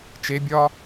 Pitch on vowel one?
rising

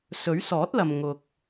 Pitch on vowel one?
rising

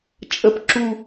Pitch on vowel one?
falling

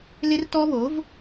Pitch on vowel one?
high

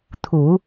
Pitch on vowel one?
low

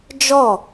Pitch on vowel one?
falling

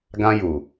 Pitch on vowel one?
high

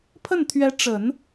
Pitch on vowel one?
falling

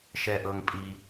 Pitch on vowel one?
low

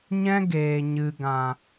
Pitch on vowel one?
high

